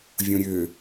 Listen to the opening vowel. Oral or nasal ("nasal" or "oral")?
nasal